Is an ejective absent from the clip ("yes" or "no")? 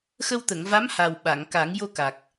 yes